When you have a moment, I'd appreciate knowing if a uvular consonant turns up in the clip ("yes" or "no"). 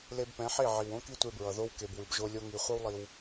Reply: yes